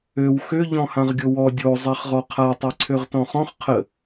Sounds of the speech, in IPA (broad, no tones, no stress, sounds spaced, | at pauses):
ø w x ø ʎ ɔ̃ h ã ʁ ɡʲ o w ɔ dʲ o zˤ ɛ χ ʁ ɔ qʰ a tˤ ɛ ǀʰ ø ʁ t ɔ̃ χ ɔ̃ χ qʰ ə